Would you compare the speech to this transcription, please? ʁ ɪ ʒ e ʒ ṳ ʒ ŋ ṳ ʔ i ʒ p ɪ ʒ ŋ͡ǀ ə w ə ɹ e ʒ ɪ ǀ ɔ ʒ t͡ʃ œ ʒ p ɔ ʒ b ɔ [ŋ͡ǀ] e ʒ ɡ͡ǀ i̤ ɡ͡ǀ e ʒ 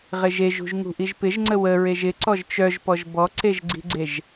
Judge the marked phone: incorrect: ǀ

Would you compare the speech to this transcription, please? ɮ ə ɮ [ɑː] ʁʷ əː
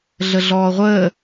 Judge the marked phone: incorrect: ɔː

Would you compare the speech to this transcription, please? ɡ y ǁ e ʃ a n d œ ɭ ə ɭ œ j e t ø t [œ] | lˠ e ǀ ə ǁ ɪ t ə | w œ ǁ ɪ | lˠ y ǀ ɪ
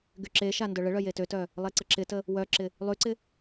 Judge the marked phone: correct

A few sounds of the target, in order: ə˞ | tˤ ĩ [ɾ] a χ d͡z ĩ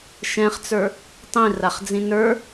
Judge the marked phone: incorrect: r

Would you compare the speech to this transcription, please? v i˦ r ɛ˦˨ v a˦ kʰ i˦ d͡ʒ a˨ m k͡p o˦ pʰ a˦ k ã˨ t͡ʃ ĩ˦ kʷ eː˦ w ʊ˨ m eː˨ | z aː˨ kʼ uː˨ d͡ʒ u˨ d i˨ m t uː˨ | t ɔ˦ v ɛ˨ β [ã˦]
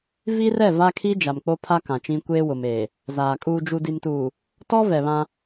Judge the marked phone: correct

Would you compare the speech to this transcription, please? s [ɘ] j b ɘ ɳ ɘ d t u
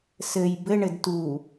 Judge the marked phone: correct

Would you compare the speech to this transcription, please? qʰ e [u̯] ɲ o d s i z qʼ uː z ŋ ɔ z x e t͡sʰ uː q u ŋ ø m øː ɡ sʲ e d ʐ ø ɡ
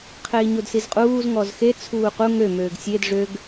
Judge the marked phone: incorrect: i̯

